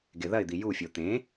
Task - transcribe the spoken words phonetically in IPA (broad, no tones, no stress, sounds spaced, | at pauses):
ɡ e ð ɐ ɪ̯ d̪ i j u fʲ o t̪ ẽ